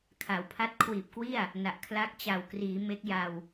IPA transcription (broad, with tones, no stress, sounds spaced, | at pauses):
kʰ a˩˦ w pʰ a˦˥ t̚ kʰ w iː˨˩ p̚ k w i˥˩ a̯ | n a˨˩ ʔ kʰ l a˦˥ k̚ t͡ɕ a˨˩ w k r iː˩˦ m e˦˥ k̚ j a˧ w